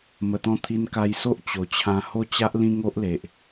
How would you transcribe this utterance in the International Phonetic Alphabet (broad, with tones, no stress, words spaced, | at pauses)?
mə˨˩t̪ɔ̃˧ t̪ʰi˧nka˧jso˦ʔ t͡ɕo˨˩t͡ɕʰã˧ ho˥˧t͡ɕa˦ʔ lĩ˦ŋo˦ʔle˨ʔ